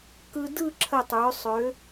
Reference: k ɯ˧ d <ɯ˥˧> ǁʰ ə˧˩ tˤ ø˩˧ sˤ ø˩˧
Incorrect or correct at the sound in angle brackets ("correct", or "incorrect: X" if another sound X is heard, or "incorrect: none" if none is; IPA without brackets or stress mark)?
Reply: correct